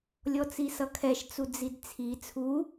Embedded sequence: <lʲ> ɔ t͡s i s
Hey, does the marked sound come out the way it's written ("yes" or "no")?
yes